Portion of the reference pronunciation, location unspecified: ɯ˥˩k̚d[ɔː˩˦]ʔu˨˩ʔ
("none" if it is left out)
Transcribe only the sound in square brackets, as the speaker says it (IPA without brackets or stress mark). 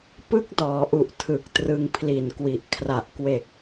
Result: ɔː˩˦